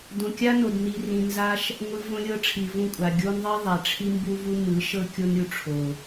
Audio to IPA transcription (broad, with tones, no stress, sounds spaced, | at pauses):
d õ˨ kʲ a˦ n o˨ d n i˨ r ĩ˨ n z a˧ ʃ | ŋʷ ɯ˧ v õ˧ lʲ ɤ˧ ʈ͡ʂʰ i˨ v ũ˦˨ kʷʼ a˨ ɡʲ o˦ n ðˤ i˦ ðˤ a˨ ʈ͡ʂʰ i˦ m b u˦ v u˦ m ɯ˨˦ ʃ ɤ˦ kʲ o˦ n ɾʲ u˧ ʈ͡ʂʰ o˨